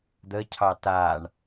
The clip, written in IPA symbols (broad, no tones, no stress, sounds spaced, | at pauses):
d̪ ə cʰ ɑ t a ɳ